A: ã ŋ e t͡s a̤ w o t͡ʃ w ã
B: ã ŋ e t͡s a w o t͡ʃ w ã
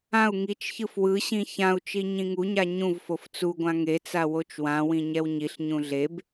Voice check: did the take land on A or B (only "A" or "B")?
B